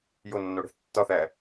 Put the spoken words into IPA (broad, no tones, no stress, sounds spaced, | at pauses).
j o nː o ɽ e̤ θ tː ɒ θ æ